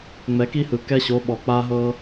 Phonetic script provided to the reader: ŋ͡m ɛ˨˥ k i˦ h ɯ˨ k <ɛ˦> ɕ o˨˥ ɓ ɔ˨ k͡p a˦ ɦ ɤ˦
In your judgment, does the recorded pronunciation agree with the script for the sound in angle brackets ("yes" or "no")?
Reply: yes